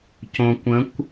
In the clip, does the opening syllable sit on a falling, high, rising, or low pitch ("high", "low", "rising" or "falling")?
low